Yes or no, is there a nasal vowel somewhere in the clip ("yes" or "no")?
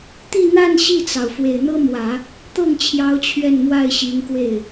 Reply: no